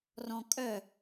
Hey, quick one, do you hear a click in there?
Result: no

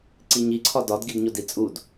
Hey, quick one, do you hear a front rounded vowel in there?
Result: no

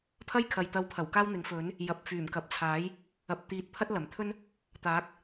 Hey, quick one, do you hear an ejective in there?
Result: no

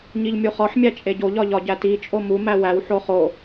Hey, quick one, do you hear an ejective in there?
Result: yes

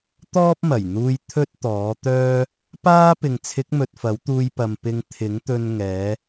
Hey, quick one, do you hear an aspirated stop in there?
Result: yes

